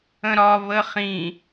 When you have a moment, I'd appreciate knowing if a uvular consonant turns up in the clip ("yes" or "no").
yes